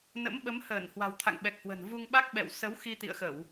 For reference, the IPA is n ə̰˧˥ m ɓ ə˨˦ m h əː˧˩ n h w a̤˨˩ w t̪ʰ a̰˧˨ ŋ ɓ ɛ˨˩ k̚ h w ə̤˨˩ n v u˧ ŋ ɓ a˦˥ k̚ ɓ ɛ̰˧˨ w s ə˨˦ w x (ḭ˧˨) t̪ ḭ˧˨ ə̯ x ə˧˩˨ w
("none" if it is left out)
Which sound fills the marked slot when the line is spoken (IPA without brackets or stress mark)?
i˧